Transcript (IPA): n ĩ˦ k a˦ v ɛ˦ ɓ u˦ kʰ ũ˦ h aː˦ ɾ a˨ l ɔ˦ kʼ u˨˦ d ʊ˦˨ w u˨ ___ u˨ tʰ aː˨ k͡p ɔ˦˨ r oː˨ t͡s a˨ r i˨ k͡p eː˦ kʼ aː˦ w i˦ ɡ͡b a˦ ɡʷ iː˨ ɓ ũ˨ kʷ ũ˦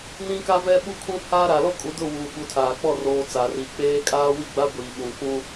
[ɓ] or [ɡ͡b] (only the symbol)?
ɓ